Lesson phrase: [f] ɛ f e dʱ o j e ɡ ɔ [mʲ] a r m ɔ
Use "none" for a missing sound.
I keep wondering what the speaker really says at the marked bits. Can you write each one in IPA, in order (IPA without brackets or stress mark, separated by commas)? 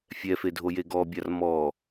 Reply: fʲ, bʲ